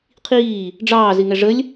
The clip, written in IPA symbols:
qʰiː | ɖ͡ʐɑː ziŋɛʐəlʲ

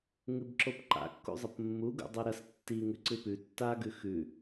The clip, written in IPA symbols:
ŋɨbǁopǃa̰ kːṵzˤɐpmːu ɡṵdˤoɾɐs tːi ŋʉǀɨpʉ tːa ɡʉxʉ

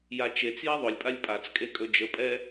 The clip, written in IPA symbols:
jat͡ʃet͡sjɛ ðˤɵlʲpʼalʲ pʼat͡skʼe kʼɵd͡ʒəpʼɛ

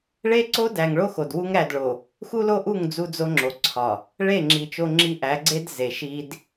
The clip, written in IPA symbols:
ɭe˦ǀo˦dæ˨ŋɭo˦ xo˨d wu˦ŋɾæ˦˨dɭo˨ | xu˦lo˦ʔu˦˨ŋ d͡zu˦d͡zo˦ŋ͡ǁo˨ǀʰɒ˨ | ɭe˦˨ŋ͡ǁi˨ t͡ʃo˦ŋ͡ǁi˦ ʔæ˨˦ɡ͡ǀe˦d ze˨ʃi˦d

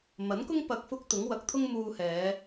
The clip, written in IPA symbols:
mɐ˨˥nkʊ˥ŋ pɐ˧k̚fʊ˥k̚t̪ʊ˨˥ŋ wɐ˨˥k̚t̪ʰʊ˥ŋ muː˧hɛː˨˧

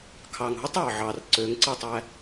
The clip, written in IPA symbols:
kʰɑː˨ŋɦu˦tˤ ɑː˨ʕɑː˨r ǀøː˨˦ŋǀɯ˦˨tˤæː˦

